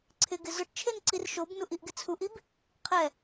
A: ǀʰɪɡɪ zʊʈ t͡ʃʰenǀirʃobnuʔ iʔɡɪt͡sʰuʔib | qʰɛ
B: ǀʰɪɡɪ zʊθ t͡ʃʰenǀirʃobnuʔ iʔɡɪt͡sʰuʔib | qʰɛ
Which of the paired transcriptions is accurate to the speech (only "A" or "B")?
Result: A